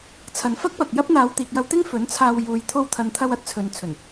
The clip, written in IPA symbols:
t͡sʰ ɐ˨ n f ɐ˥ k̚ p ɐ˨ k̚ j ɐ˥ p̚ n̪ aː˨˧ w t̪ iː˨ k̚ j ɐ˧ w t̪ ɪ˥ ŋ f ɵ˨˥ n t͡sʰ aː˧ w j uː˨ j t̪ʰ o˧ w t̪ʰ ɐ˨ n t̪ʰ ɐ˧ w ɐ˥ t̚ t͡sʰ ɵ˨ n t͡sʰ ɵ˨˩ n

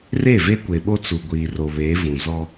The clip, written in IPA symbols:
r e˦˨ v e˦ kʷ e˨ ɓ o˦ t͡s u˨ ɡʷ iː˨ r o˨ β eː˨˦ v ũ˨ z ɔ˦

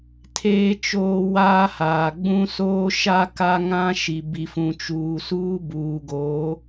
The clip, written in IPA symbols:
tʰ eː˦ t͡ʃ oː˦ w aː˦ h aː˨ ɡ͡b ũ˦ s oː˦ ʃ a˦ k a˦ ŋ ã˦ ʃ i˨ b i˨ f ũ˨ t͡ʃ uː˨ s uː˦ b uː˨ ɡ o˨˦

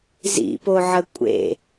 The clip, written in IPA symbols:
z ḭ p o ʕ ə kʷʼ ḛ

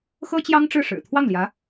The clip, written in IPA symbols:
x ɤ˥ t͡ɕ j ɑ˥ ŋ ʈ͡ʂ ɻ̩˥˩ ʂ ɻ̩˨˩ t̪ʰ w ɑ˥˩ ŋ l j ä˧˥

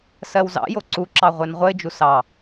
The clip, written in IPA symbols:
s ɜ w z ɑ̰ j o ǀ u ǁ ɑ ʁʷ e n ʁʷ ə ɪ̯ d͡ʒ u s ɑ

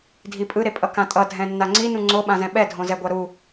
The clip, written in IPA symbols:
dʱ i pʼ ɯ ɾ e pʼ ʌ k ã tʼ ʌ dʱ ɛ̃ nː a ŋ͡ǀ i n ũ ŋ͡ǀ o ɓ ã z ɛ̃ ɓ ɛ dʱ õ z ɛ ɡʷ a ɾ u

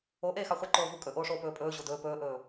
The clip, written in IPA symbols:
o ʔ eː x ɑ χʷ e ǃ oː v u kʼ ɵ ʔ oː ʂ oː p ɵː pʼ ɵː ʑ o d ɵː p ɵː ʔ ɵː

